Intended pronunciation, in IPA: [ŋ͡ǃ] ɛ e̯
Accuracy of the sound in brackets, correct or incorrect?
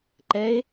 incorrect